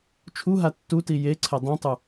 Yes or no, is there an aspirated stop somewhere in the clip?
yes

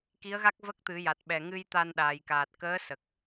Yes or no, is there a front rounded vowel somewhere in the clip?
no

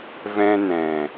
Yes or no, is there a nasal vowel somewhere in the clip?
yes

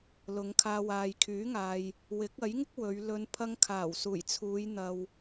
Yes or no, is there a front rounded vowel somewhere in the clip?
yes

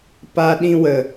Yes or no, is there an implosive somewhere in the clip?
yes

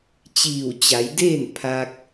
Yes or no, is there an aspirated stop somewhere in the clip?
yes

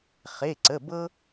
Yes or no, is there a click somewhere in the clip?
yes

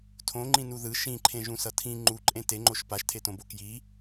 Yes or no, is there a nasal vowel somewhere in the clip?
yes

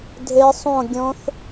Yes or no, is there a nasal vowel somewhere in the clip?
yes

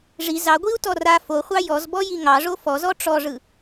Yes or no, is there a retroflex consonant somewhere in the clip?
yes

